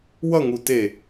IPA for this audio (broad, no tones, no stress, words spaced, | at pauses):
wʌŋu te